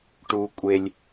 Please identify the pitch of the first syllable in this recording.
low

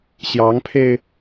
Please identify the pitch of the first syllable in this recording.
rising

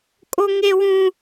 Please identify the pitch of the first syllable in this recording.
high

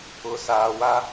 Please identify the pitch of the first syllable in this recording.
low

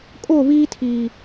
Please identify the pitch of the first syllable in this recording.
falling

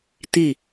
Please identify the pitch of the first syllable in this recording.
falling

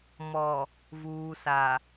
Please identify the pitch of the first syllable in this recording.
low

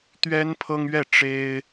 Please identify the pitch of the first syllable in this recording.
high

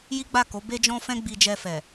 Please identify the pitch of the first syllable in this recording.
high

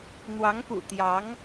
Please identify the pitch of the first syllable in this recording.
rising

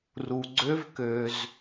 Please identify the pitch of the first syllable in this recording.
low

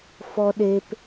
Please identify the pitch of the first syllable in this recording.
high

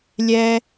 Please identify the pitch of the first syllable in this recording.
high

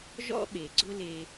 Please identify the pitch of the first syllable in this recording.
high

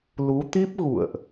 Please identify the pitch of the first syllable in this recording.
rising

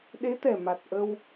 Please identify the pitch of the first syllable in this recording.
rising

